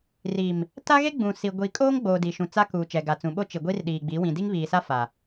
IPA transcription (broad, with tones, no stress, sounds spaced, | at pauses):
r iː˨ m | t a˦ ɣ e˦ ɡ͡b ũ˨ s i˨ ɡʷ i˨ kʼ oː˦ ŋ ɡ͡b oː˨ d i˨ ʃ ũ˨ t͡s a˦ k uː˨ t͡ʃ ɛ˨ ɡ a˨ t͡s ũ˨ ɓ o˦ t͡ʃ i˨ ɡʷ iː˦ r ɗ iː˨ ɡ͡b iː˨˦ w ĩ˨ d i˦ ŋ β iː˨ s a˦ f a˨